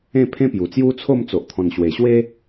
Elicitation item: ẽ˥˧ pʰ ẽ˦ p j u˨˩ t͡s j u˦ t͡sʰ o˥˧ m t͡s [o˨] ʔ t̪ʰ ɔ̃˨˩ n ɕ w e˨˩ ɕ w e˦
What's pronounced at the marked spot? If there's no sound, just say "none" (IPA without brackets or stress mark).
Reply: o˨